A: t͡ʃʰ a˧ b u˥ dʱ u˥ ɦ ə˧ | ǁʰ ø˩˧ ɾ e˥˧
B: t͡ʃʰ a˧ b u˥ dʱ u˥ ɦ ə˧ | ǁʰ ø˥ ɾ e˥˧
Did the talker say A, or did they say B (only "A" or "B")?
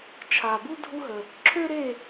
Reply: B